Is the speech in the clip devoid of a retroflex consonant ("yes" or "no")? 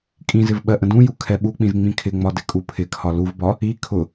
yes